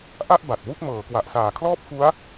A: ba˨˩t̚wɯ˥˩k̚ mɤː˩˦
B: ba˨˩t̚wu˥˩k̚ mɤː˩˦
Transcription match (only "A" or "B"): B